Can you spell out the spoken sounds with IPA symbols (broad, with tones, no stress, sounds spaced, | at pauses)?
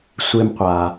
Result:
sʷ e˦ m qʷ a˨